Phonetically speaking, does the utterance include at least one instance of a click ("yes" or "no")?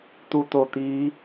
no